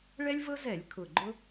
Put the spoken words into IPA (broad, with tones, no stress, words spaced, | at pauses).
ɭɛ˦lʲvɤ˦zɛ˧˩˧lʲ kʰʊ˨˩ɡ͡ǃʊ˦